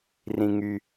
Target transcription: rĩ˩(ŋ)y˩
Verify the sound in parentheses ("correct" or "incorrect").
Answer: correct